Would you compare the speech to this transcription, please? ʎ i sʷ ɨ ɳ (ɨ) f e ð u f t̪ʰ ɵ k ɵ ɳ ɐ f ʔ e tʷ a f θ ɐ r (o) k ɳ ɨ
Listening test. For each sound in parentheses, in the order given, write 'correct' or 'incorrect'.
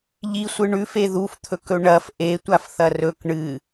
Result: incorrect: ʉ, incorrect: ɵ

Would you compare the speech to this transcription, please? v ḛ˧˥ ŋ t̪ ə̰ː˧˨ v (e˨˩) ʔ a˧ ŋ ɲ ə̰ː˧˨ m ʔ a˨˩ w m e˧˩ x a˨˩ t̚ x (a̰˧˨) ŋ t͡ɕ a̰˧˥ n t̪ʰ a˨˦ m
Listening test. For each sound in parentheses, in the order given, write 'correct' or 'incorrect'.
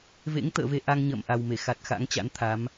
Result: incorrect: e˧, incorrect: a̰˧˥

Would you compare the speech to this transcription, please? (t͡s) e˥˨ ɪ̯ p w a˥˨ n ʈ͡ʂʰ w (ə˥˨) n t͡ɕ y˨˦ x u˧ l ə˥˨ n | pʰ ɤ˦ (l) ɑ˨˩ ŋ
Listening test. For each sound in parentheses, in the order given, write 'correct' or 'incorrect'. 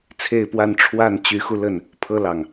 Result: incorrect: t͡sʰ, incorrect: a˥˨, correct

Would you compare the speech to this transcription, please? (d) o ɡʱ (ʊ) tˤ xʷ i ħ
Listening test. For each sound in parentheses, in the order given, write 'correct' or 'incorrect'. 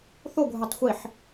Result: incorrect: θ, correct

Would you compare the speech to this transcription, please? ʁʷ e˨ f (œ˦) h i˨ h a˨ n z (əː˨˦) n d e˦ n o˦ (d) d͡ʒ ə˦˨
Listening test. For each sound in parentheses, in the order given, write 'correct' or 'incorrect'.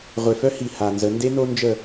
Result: correct, incorrect: ə˨˦, incorrect: n

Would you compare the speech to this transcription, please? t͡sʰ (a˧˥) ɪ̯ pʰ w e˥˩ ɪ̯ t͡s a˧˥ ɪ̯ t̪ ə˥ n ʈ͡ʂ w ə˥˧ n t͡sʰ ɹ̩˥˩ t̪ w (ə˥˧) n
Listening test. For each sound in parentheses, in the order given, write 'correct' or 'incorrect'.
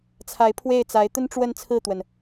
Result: correct, incorrect: ə˩

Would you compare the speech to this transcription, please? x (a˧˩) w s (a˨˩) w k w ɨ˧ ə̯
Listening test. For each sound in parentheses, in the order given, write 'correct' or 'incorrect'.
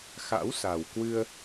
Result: incorrect: a̰˧˥, correct

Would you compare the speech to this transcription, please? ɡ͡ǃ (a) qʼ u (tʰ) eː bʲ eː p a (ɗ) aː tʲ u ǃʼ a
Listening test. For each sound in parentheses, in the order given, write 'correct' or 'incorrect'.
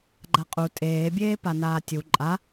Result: correct, incorrect: tʼ, incorrect: n

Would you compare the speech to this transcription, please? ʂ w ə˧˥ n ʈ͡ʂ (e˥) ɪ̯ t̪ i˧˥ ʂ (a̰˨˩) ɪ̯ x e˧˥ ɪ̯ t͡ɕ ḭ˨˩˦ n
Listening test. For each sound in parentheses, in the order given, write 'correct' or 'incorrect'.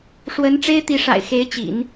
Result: correct, correct

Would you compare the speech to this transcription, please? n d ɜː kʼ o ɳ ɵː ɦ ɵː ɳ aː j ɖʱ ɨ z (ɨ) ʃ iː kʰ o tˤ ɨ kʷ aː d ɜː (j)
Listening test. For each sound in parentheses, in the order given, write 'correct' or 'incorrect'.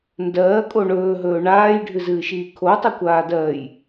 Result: incorrect: ɨː, correct

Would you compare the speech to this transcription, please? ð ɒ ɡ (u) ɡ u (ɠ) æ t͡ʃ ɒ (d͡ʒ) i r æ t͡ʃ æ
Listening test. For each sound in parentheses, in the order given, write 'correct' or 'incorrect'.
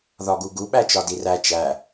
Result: correct, incorrect: ɓ, incorrect: d

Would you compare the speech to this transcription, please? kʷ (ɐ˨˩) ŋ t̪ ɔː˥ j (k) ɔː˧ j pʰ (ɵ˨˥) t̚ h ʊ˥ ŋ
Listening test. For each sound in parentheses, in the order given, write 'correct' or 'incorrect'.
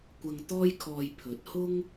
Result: incorrect: ɐ˧, incorrect: kʰ, correct

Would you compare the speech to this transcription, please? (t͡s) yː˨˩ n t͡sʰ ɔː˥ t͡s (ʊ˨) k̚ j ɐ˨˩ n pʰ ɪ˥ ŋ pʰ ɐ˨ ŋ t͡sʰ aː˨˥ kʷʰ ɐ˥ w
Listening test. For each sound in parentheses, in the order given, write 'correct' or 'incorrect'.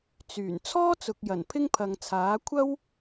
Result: correct, correct

